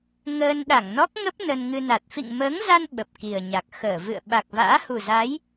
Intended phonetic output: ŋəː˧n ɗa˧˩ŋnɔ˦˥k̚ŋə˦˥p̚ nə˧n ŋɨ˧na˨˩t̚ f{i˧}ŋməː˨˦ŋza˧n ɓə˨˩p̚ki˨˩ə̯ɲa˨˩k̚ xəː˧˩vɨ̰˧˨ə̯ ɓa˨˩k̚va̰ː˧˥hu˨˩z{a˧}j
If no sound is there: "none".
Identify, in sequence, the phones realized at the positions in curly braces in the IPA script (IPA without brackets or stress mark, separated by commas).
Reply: ḭ˧˨, a˨˦